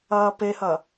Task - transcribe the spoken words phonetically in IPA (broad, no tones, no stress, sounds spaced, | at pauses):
ɐː p e h ɐ